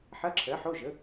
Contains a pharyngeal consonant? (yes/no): yes